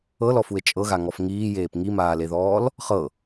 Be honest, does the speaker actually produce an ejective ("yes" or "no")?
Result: yes